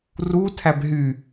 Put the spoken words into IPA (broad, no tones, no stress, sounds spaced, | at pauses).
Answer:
r u tʰ æ b ɦ y